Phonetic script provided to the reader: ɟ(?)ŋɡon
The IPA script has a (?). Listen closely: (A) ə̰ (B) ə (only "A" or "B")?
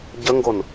B